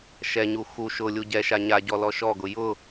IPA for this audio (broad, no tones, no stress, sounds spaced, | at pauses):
ʃ ɛ ɲ u x u ʃ ʊ lʲ u ɟ ɛ ʃ a ɲ a ɟ ɔ l ɔ ʃ ɔ ɡ ʊ j ʊ